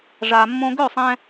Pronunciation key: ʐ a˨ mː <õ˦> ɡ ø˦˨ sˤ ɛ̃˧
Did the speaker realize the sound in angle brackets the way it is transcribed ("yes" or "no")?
yes